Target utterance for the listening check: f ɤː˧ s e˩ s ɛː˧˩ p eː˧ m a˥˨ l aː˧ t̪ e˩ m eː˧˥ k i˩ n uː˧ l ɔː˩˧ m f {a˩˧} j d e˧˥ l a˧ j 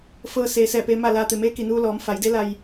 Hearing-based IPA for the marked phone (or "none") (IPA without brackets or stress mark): a˩˧